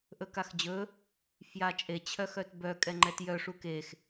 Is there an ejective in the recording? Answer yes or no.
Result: yes